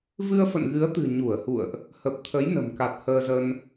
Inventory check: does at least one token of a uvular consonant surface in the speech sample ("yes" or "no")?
no